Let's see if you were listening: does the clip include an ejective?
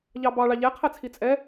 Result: yes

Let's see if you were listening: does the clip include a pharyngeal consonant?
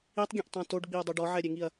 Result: yes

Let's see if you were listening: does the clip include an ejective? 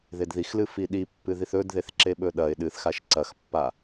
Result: no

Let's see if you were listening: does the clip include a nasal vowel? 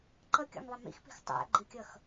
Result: no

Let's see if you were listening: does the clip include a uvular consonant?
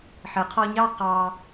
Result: yes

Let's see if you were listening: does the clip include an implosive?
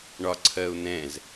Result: no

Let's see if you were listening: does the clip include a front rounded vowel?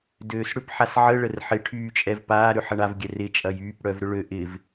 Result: yes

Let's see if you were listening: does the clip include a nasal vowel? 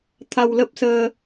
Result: no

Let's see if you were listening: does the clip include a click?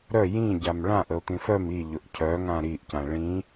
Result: no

